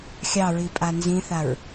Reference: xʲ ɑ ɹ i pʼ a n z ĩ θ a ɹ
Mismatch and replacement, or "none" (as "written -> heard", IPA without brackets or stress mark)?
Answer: none